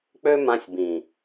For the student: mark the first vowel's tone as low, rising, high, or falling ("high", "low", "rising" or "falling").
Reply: high